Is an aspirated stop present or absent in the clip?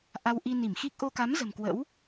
absent